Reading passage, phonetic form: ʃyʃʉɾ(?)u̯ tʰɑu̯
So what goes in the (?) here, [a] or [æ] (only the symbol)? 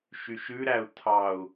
æ